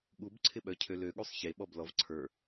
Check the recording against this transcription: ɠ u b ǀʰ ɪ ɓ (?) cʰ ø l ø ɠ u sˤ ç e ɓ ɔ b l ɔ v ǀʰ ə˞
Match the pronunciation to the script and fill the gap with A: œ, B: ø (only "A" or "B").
A